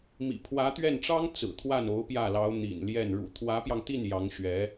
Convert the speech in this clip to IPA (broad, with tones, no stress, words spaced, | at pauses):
mḭ˨˩ pʰwä˧˥t̪ɥɛ˥˩nʈ͡ʂɑ˥ŋ t͡sɹ̩˨˩t̪ʰwa˥˩n o˧˥ʊ̯pjä˥˩lɑ˧˥ʊ̯ n̪ḭ˨˩n ljɛ˥˩n ɻṵ˨˩t̪ʰwä˧˥pjɑ˧ŋt̪i˥˩n jɑ˧˥ŋɕɥɛ˧˥